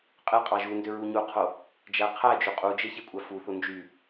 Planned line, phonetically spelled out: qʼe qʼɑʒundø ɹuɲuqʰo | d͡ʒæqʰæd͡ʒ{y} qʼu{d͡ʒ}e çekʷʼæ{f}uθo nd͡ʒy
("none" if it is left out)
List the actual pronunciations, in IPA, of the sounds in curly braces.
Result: y, d͡ʒ, f

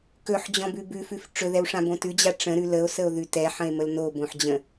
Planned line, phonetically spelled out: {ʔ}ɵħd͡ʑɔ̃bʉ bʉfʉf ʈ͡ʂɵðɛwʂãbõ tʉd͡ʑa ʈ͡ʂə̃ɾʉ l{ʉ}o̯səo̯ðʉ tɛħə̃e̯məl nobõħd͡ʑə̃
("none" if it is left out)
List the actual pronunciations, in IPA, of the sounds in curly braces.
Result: k, ə

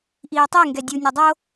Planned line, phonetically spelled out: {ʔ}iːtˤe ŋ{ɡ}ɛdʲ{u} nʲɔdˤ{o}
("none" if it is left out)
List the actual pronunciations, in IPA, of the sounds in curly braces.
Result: ʔ, ɡ, u, o

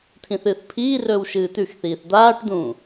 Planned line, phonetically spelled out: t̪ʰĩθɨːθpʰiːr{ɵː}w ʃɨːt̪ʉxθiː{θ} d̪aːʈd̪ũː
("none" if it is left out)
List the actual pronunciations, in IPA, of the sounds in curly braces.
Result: ɵː, θ

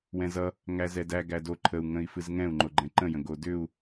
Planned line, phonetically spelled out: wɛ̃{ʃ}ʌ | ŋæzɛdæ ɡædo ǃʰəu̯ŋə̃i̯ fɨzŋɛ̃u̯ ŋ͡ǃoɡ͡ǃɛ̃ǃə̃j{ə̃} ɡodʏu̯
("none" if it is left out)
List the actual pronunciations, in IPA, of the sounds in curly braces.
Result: z, ə̃

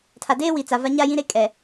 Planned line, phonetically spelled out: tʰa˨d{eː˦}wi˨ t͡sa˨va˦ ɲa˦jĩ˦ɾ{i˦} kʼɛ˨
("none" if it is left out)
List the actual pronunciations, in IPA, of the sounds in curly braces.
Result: eː˦, e˦

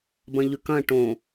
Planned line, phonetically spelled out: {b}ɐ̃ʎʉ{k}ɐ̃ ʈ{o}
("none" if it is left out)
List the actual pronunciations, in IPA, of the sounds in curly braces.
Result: b, k, õ

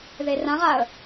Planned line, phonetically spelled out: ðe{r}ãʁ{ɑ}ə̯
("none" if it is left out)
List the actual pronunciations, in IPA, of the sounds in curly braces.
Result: r, a

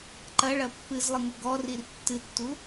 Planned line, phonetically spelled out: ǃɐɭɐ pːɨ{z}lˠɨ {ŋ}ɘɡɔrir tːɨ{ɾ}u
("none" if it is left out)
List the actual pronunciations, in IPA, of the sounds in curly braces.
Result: z, ŋ, tː

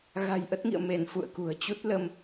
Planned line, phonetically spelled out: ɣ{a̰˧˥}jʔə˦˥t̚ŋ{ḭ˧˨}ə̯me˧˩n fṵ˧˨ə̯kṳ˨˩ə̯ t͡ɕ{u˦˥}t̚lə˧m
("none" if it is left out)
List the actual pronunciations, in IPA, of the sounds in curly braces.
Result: a̤˨˩, ḭ˧˨, u˦˥

